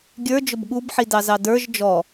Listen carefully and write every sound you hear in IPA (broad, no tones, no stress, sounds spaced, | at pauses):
ɡʲ ə˞ d͡ʒ ʊ b ɠ u b ħ i d ɑ z ɑ d ə˞ ʒ d͡ʒ ɔ